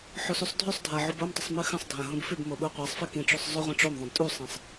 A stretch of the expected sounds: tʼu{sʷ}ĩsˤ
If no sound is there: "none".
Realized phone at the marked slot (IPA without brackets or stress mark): sˤ